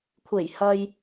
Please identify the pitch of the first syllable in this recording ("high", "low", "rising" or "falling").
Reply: low